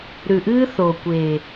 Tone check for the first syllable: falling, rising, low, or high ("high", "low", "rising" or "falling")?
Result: low